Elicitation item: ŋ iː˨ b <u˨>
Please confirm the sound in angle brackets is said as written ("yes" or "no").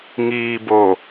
no